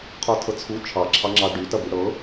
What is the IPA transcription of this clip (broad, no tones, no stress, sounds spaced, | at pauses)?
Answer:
qʰ ɔ tʰ ɤ t͡sʰ u t͡ʃʰ ɑ ǁʰ ɑ ŋ͡ǁ ɑ ɖ y t ɐ b y ɽ ɤ